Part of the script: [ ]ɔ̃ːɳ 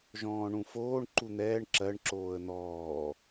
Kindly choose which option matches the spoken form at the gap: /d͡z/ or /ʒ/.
ʒ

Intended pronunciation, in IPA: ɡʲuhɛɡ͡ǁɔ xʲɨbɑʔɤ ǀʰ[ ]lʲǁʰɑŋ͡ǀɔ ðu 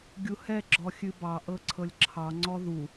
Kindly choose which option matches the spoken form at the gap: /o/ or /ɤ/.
ɤ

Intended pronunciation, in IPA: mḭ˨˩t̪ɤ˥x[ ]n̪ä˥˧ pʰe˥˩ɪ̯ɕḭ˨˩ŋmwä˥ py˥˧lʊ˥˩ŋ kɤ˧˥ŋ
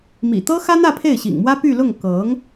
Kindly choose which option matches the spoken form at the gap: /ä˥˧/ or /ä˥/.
ä˥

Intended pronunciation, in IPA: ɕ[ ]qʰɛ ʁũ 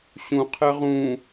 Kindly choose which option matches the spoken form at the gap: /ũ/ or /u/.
ũ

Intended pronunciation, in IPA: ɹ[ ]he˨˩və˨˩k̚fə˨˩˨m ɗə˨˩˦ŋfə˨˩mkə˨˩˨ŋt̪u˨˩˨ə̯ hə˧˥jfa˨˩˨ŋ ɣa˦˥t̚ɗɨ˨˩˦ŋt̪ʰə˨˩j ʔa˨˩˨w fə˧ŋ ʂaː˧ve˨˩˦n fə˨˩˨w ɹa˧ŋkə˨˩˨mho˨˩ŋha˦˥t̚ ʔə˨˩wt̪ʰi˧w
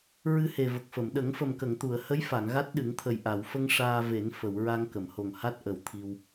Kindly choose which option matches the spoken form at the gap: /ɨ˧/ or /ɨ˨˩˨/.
ɨ˧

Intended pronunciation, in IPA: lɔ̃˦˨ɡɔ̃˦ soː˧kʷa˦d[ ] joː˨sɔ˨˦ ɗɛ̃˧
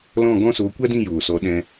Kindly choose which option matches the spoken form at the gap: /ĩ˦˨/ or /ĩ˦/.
ĩ˦˨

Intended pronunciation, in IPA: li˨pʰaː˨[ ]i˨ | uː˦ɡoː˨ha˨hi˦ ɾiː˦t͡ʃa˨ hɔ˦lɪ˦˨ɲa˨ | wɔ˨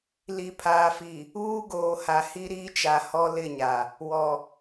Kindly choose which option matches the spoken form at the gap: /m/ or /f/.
f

